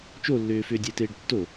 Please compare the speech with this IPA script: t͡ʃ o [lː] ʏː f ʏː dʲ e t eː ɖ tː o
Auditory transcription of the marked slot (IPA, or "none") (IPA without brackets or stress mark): lː